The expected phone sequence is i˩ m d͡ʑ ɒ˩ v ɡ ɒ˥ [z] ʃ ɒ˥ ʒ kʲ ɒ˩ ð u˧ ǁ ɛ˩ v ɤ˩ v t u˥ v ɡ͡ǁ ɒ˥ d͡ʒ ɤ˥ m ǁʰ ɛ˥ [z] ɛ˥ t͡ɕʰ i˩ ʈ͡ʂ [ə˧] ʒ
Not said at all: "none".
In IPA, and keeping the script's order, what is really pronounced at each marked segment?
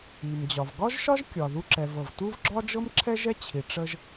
ʒ, ʒ, ə˧

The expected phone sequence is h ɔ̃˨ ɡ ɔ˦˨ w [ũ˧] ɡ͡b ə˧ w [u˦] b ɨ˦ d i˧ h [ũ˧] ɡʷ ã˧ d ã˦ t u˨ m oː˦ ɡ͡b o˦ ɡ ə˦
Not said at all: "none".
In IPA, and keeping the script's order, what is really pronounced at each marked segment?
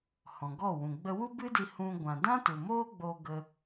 ũ˨, u˦, ũ˦

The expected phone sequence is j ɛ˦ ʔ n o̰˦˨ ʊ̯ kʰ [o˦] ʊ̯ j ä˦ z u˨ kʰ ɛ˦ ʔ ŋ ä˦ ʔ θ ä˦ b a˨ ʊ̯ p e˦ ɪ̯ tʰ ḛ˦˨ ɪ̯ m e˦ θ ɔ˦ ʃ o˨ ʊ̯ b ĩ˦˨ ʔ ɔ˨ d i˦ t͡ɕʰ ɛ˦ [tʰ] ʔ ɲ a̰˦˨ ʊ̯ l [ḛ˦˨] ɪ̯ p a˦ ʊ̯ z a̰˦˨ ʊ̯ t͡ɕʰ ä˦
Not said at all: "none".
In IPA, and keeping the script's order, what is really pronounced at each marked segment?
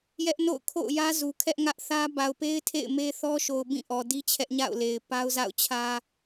o̰˦˨, none, e˨

